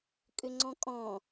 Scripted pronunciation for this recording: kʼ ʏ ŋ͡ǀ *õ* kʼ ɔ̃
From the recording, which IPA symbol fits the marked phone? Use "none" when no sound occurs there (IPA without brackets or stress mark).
ɔ̃